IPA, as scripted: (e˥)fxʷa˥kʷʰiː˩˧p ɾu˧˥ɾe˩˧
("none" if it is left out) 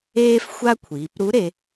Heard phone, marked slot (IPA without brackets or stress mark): eː˥